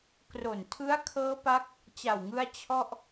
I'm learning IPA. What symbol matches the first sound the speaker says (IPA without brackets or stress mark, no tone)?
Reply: k